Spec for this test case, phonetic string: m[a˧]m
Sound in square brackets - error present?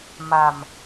yes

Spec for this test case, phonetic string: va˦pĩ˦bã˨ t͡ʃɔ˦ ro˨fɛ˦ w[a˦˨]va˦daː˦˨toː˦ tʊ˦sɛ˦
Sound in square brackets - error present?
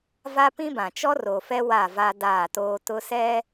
no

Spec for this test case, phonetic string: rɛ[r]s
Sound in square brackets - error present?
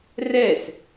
yes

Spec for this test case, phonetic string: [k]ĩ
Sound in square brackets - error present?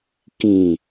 no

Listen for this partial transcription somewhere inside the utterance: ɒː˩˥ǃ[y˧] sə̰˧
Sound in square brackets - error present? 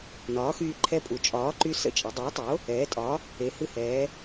no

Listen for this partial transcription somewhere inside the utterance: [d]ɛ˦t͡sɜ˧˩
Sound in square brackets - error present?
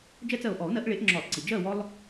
yes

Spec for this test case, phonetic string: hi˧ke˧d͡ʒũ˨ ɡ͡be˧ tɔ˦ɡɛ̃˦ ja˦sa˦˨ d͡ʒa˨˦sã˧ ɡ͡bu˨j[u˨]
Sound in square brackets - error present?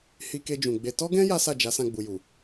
no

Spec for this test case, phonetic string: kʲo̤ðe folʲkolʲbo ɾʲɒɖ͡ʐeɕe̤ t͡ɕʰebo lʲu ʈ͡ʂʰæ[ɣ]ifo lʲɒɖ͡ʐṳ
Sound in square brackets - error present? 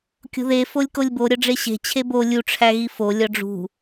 no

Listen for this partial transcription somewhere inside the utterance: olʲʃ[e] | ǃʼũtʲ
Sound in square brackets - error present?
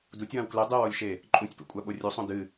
no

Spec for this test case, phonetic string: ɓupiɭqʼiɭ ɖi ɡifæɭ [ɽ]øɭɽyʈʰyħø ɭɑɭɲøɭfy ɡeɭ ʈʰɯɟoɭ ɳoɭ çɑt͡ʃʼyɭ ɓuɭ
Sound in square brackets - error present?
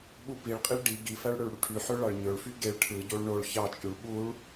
no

